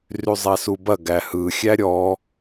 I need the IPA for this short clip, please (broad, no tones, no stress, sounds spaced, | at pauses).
r y zˤ æ s u b ɐ ɡ æ h ɯ xʲ æ ɾʲ ɔ